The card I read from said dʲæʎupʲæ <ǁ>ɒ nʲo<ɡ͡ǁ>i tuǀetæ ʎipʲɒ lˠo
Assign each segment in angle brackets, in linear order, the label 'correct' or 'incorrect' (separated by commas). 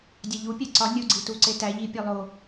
incorrect, incorrect